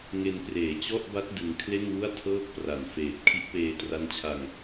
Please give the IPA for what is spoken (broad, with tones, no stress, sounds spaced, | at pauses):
ŋ e˧ n p r eː˩˦ t͡ɕ ɔ˥˩ ʔ b a˦˥ t̚ d ɯ˧ ŋ kʰ l e˥˩ n w u˥˩ a̯ tʰ ɤː˥˩ k̚ p r a˨˩ n f eː˨˩ t̚ kʰ i˦˥ ʔ p eː˧ t r a˦˥ n t͡ɕʰ a˧ ŋ